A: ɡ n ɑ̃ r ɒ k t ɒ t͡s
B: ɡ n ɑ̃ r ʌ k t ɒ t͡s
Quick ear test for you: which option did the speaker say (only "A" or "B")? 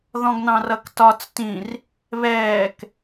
B